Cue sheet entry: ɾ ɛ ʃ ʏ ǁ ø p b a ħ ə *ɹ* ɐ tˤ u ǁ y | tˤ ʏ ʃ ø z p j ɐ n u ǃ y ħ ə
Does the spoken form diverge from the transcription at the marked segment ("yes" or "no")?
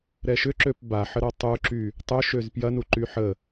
yes